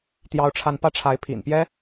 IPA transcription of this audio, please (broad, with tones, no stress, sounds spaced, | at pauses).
t̪ j ɑ˥ ʊ̯ ʈ͡ʂʰ a˥˧ n p ä˥˩ ʈ͡ʂʰ a˧˥ ɪ̯ pʰ ḭ˨˩ n p j ɛ˥